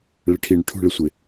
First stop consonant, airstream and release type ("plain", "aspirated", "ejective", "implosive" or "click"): aspirated